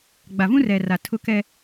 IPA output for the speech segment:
ɡ͡b a˨ v ũ˦ r ɛ˨ r a˨ tʰ ʊ˦ k ɛ˦

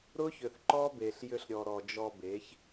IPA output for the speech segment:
ɾ ʊ˦ ç ʏ˨ θ ǃ ɔ˦ b e˨ ɬ j ʏ˧ ɬ ɾʲ ɔ˨ ɾ ɔ˨ d͡ʒ ɔ˧ b e˨˦ ç

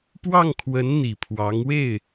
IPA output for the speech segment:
p w ɑ˥˩ ŋ kʰ w ə˧˥ n n̪ i˨˩ pʰ w ɑ˧˥ ŋ w e˥˩ ɪ̯

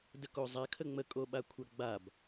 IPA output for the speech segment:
d ə k o zˤ a kʰ ə ŋ͡m ə kʼ o ɓ a kʷʰ a ɡ͡b a b

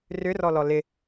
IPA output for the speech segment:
r ʏ r ɔ l ɔ l ɪ

